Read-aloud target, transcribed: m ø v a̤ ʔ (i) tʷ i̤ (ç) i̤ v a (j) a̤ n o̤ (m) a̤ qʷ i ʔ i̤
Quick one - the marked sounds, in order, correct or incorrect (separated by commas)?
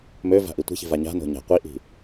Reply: correct, correct, incorrect, incorrect